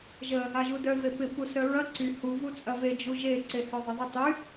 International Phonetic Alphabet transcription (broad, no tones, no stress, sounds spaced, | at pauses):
ʒ ə | a ʒ u d œ v e p ɪ p u s œ ɹ ɐ ǀ y h u v u t͡sʼ ɐ v e d͡ʒ u ʒ e ǀ e h œ ðˤ ə ðˤ ɪ tˤ y